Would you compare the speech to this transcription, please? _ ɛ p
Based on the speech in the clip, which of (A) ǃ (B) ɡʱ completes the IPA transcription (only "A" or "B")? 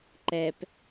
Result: A